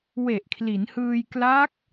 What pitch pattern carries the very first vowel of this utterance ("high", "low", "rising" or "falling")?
low